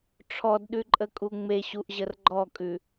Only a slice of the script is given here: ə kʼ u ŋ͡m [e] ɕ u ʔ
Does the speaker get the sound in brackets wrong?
no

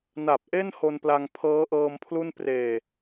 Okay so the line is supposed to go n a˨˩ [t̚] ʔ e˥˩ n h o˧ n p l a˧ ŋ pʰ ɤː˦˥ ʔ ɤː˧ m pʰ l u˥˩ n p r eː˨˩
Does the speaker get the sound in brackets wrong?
yes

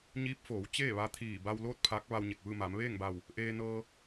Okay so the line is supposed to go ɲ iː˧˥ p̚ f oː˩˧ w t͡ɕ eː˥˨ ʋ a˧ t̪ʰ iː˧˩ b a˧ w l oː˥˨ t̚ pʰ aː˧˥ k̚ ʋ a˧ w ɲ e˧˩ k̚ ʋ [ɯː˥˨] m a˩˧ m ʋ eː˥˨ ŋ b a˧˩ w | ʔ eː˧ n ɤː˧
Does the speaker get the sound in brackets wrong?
no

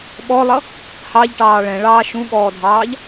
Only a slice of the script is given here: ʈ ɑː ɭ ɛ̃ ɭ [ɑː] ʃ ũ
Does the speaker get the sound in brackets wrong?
no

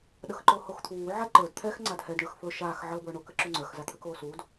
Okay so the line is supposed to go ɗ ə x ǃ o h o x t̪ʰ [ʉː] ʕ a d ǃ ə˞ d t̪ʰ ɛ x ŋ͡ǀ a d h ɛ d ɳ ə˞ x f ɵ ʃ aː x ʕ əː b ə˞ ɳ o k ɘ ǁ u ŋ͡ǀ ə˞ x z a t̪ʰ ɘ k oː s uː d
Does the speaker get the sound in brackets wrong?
yes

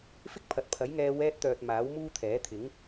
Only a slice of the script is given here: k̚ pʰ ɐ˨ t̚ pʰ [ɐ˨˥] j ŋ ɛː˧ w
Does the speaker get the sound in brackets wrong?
no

